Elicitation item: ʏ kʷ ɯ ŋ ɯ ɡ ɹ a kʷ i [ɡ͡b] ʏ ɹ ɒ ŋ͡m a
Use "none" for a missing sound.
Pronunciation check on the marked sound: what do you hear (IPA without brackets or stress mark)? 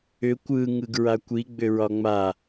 ɡ͡b